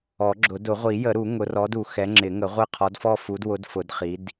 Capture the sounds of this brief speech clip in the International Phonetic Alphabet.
ɔ˨˩˦ɡ͡ǁʊ˨˩˦ dʊ˨˩˦ʁʷi˨˩˦ jə˨˩˦ɾu˨˩˦ ŋʊ˨˦ rɔ˨˦du˨˩˦ xɛ˨˦ŋ͡ǁɪ˨˩˦ŋə˨˩˦ ʁʷɪ˦˨ qʰɔ˨˦dfɔ˦˨ fu˨˦dwʊ˨˦dfʊ˨˩˦d χi˨˦d

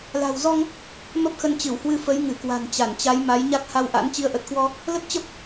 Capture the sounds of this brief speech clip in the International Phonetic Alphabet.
la̤˨˩wzɔ˧ŋ | mə˦˥p̚xə˧nt͡ɕɨ˧˩whwɨ˧ fə˨˦jŋɨ˧˩kwa̤˨˩n t͡ɕa˧˩nt͡ɕa˨˦jma˨˦j ɲa˦˥k̚ha˧wʔa̰˧˥n t͡ɕi˨˦ə̯ʔə˨˩t̚kwɔ˧ | lə˦˥t̚t͡ɕə˦˥p̚

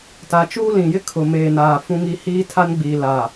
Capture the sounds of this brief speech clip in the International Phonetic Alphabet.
ta˨t͡ʃuː˦lĩ˨jɪ˦ kʰʊ˨meː˨naː˨ fũ˦ŋi˦ hiː˦tʰa˦nɡ͡biː˨ la˨

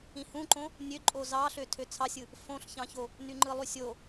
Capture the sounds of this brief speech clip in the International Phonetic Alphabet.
ĩhũǃõ | nʲøǃʼo zɑɬø tʰøt͡sʰɑsʲɯ | fõɬçɑ̃ço | nyŋ͡ǃɯlˠysʲo

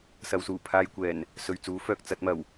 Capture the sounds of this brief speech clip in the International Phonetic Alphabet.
sɐ˨˧wsuː˨˩ pʰaː˧jkʷɛː˨˩n | sɵ˨ɥt͡suː˨˥fœː˨k̚ t͡sɐ˨˥t̚mɐ˨˩w

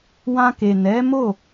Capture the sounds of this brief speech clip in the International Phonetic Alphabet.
wã˧ke˨ nɛ˨˦ mo˦˨

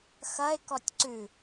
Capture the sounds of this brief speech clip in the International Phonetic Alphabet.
xɐe̯kɔtʲ ǀʉ

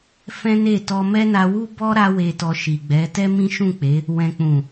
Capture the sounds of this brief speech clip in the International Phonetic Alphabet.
fɛ̃˦ne˦˨ tɔ˧mɛ˦na˧wu˦ bɔ˦ ɾa˧we˨tɔ˨ ʃi˨ɡ͡bɛ˨˦ tɛ˦mĩ˦ʃũ˦˨k͡pe˨˦ | wɛ̃˨k͡pũ˨

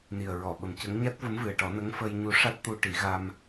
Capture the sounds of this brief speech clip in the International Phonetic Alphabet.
ni˨˩ə̯ɹɔ˨˩˨ɓə˨˩mcə˧˥ŋ ɲa˦˥t̚və˧˥mvɨ˨˩ə̯ʈɔ˨˩˦ nə˧˥ŋfə˧jɲu˧ ʂa˦˥t̚t̪u˧ʈi˨˩˦ɣa˧m

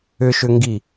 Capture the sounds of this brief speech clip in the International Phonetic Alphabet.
ʏʃʏŋɡi

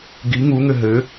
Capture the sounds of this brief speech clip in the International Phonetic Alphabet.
ɡi ŋuŋɘ ɦɘ

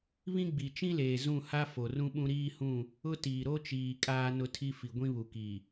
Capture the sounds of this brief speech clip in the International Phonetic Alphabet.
βĩ˦ ɡ͡bi˨t͡ʃĩ˦leː˨ zũ˦˨ha˦ fo˨rũ˦ɓũ˦ ɾiː˦ hũ˦˨ | ʊ˦ tiː˨ɾo˦t͡ʃiː˨ kʼaː˦nʊ˦tʰi˦fi˨ ɡʷĩ˦βu˨ki˨

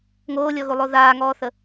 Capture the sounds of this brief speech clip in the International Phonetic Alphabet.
ŋoːlʲɔɣulˠo ðaːŋɔːθə

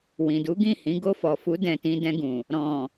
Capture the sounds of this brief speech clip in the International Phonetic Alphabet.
wĩ˨du˨˦ɡĩ˦˨hĩ˨˦ ɡo˧fɔ˨fu˨˦ dɛ̃˧tĩ˧dɛ̃˧ɡũ˨ | ɾɔ̃˨

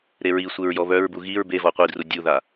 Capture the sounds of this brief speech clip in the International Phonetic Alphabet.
ɾeɹisʷeɹ jɔβœɹbu ɣiɹ bevɔ qʷidru dʲuða

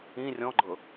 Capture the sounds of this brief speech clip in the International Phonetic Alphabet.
ĩ rʲɔ̃ɡ͡ǃɤ

